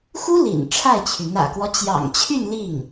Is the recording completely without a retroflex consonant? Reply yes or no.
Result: no